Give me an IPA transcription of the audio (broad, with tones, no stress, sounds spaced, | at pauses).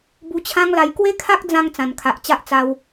b u˧ t͡ɕʰ ã˦ ŋ l a˧ j k w e˦ kʰ a˦ k̚ d͡z ã˧ ŋ t͡s ã˨˩ n kʰ a˨ ʔ t͡ɕ a˦ ʔ t͡s a˧ w